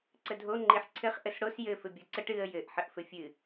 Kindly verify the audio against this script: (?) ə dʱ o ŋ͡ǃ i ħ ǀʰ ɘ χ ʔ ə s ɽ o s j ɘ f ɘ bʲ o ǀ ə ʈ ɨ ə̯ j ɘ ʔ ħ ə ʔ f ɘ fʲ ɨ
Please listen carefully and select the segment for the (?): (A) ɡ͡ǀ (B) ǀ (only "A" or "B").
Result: B